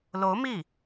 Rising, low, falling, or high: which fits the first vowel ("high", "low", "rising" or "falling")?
rising